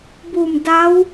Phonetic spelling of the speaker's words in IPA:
b u˧˩ m d a˧˥ w

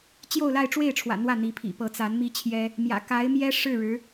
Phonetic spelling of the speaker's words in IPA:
t͡ɕ j o˥˧ ʊ̯ l a˥˧ ɪ̯ ʈ͡ʂ w e˥˩ ɪ̯ ʈ͡ʂʰ w ä̰˨˩ n̪ w ä˥˩ n̪ i˧˥ pʰ ḭ˨˩ p ɤ˧˥ t͡s a˧˥ n m i˥ t͡ɕʰ j ɛ˥ | m j ä̰˨˩ k a˧˥ ɪ̯ m j ɛ˥ ʂ ɻ̩˥˩ ɻ ɻ̩˧˥

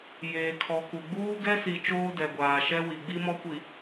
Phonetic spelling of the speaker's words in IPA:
j eː˨ kʰ ɔ˨ k u˨ ɡ͡b uː˦ ɡ ɛ˦ s i˨ t͡ʃ oː˦ d ɛ˨ ɡʷ aː˨ ʃ ɛ˦ w i˨ ɡ͡b i˦ m ɔ˦ kʷ i˨

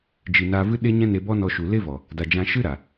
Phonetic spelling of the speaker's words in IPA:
d͡ʒ i˨ n a˧ v ɨ˦ ɗ e˦ ɲ ɛ̃˦ n e˧ b ɔ˦ n ɔ˧ ʃ u˨ l e˦ v ɔ˨ | d a˨ d͡ʒ ã˧ ʃ ɨ˦ ɾ a˨

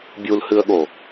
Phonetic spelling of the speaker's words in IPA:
bʲ u l h ɨ ə̯ ɠ o

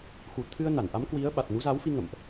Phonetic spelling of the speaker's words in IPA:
x u˨˩ t̪ʰ ɨ˧ ə̯ n a˧˩ n ʔ a˨˦ m k w i˨˦ ə̯ ɓ a˨˩ t̚ n u˨˦ z a˨˦ w f i˧ ŋ ə̰˧˨ m ʔ

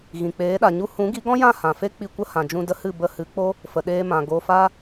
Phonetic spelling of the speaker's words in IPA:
ɣ ĩ˨ k͡p eː˨˦ ɗ a˨ ɲ u˦ h ũ˨˦ ɡ i˨˦ ɡ ɔ̃˦ j ã˦˨ h ã˨ f e˦ k͡p i˧ kʷ ə˦ h ã˨ d͡ʒ ũ˧ d ə˦ h ɨ˦˨ b ə˧ h ɨ˨˦ k͡p o˦ | f ə˨ ɗ eː˧ m ã˨ ɡ o˨ f a˧

